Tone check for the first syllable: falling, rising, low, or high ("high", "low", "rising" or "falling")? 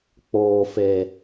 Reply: low